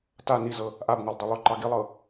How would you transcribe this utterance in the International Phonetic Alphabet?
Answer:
ta nizɤ | ʔabŋolˠ dˤolˠʏǃɑ ɡilˠɤ

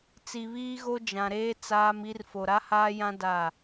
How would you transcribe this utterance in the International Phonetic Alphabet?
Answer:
t͡si˨βiː˦ɣo˦ d͡ʒã˨ɾeː˦ t͡saː˦mi˦r fo˨ɾa˦haː˦jã˦ da˦˨

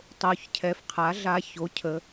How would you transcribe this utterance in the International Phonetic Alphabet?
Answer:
tˤo˨˩çcʰɛ˨˩fqʰa˩˥ɮa˧ ço˩˥ cʰə˩˧

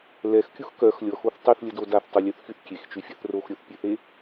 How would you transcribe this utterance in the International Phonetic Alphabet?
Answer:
lɛxkʲux kœx lʲɔxoθ tˤyθlʲədo daθtˤulʲøθxyθ kʲext͡ʃyfʲœθ roxɾʲoθpʲeθe

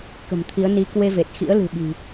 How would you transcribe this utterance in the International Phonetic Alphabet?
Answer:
kə̤˨˩mt̪ʰi˨˦ə̯ ni˨˦kwe˧ve˨˩t̚ xḭ˧˥ə̯ lɨ̤˨˩ɓi̤˨˩

